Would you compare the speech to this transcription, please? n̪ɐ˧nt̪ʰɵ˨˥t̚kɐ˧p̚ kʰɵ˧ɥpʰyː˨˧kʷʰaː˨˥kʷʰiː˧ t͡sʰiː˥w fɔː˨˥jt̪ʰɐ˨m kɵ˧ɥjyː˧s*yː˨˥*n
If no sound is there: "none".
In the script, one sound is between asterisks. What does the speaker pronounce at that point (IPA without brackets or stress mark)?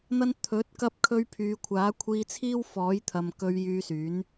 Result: yː˨˥